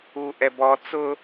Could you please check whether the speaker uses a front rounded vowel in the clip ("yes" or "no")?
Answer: no